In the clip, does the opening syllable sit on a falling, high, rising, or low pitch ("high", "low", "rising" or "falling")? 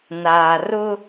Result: low